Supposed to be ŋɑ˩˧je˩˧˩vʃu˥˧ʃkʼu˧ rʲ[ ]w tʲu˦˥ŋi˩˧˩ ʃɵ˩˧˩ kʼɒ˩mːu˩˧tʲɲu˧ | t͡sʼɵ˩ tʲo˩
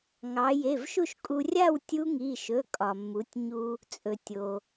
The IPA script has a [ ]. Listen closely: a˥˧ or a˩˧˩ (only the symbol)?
a˥˧